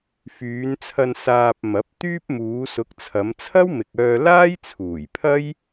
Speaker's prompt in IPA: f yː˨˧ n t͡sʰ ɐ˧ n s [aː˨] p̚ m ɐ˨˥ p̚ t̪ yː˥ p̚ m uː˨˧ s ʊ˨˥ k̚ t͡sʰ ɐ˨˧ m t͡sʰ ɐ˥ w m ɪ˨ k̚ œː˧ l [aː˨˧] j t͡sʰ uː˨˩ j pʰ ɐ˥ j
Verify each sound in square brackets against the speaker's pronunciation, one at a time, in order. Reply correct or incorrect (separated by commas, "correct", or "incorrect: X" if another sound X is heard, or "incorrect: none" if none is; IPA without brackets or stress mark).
incorrect: aː˧, incorrect: aː˥